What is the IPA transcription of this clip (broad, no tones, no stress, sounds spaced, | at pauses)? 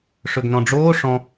ʂ ɵ ɡ n ɔ̃ ɖ͡ʐ oː ʂ ɔ̃